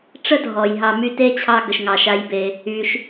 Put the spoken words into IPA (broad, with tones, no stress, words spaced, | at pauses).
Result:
ʈ͡ʂə˥dʱɔ˩jɦɑ˨ my˦te˥t͡ɕʰɑ˦ ɡə˩ʃŋɑ˩ʃa˨jbe˩ | y˩ʃ